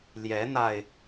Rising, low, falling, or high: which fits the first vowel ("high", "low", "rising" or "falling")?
rising